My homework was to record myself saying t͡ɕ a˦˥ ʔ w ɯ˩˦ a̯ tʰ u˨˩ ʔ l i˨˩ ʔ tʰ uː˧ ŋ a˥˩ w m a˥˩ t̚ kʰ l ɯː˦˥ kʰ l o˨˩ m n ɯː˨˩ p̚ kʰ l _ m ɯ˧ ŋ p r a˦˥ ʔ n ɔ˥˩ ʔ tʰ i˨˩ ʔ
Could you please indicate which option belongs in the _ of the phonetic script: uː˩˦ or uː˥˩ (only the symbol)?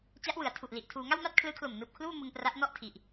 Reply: uː˥˩